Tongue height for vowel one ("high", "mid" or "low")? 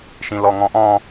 high